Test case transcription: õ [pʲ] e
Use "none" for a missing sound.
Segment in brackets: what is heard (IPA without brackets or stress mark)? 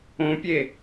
pʲ